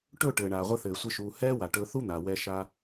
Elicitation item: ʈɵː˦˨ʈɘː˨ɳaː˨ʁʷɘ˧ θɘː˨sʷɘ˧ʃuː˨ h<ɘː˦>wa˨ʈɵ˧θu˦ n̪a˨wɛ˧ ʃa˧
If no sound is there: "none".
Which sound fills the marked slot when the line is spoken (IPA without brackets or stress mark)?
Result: ɛː˦